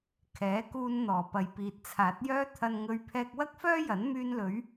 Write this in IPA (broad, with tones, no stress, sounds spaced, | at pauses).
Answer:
kʰ ɛː˨˥ k uː˧ n n̪ ɔː˨˩ p ɐ˨˩ j p iː˨ t̚ t͡sʰ aː˨˥ t̚ j œː˥ t̪ʰ ɐ˨ n ŋ ɵ˨ ɥ pʰ ɛː˧ k̚ w ɐ˥ k̚ f œː˥ j ɐ˨˥ n m yː˧ n l ɵ˨˧ ɥ